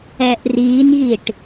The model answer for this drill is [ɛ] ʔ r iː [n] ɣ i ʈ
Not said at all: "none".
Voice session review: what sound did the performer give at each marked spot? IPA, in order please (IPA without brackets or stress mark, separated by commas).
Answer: ɛ, n